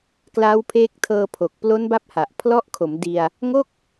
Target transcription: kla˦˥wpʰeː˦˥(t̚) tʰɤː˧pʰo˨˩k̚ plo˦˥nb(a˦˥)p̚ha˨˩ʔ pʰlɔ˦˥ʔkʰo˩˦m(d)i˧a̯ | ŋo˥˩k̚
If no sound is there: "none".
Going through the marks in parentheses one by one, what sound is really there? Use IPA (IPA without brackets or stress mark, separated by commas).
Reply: k̚, a˦˥, d